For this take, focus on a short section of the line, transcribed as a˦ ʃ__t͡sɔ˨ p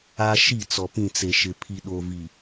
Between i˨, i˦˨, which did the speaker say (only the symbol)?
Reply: i˦˨